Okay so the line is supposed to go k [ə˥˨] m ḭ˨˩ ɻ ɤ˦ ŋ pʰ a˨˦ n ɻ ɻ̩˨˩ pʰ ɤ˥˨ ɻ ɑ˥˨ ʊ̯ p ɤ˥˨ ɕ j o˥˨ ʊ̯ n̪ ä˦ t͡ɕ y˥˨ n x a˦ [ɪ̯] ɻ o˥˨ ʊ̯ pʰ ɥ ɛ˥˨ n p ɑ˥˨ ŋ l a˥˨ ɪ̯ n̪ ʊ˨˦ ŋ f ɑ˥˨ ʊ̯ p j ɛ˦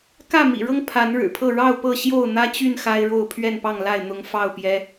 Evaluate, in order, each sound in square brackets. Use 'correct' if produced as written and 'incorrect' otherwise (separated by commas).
incorrect, correct